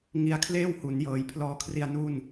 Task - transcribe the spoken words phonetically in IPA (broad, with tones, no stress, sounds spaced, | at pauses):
ŋ i˦˥ a̯ kʰ l eː˥˩ w h u˩˦ n j ɤː˩˦ j pʰ l ɔː˧ kʰ r i˧ a̯ n u˥˩ n